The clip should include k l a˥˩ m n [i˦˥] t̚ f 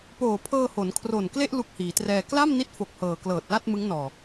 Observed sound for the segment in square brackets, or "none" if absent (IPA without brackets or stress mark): i˦˥